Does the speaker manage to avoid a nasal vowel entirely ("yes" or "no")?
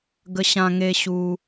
no